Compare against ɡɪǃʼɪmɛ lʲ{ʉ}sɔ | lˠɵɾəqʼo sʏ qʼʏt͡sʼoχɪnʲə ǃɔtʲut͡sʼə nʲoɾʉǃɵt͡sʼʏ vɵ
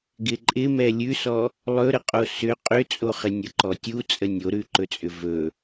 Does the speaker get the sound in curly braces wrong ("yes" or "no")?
no